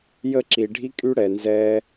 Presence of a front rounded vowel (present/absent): present